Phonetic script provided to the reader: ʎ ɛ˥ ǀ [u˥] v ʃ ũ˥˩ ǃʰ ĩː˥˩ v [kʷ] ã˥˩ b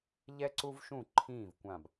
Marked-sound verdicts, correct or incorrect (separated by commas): correct, correct